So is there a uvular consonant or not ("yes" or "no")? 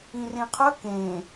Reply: yes